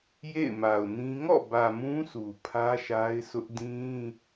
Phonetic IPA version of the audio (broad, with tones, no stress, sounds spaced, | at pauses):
j ḛ˦˨ ɪ̯ m a˨ ʊ̯ n ĩ˦ ŋ ɔ̰˦˨ b ä˨ m ũ˦ s u˨ pʰ ä˦ ʃ a˦ ɪ̯ s ʊ˦ ʔ d ĩ˦